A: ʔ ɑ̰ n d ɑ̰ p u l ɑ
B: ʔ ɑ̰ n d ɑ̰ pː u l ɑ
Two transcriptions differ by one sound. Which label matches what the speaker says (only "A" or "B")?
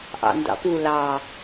A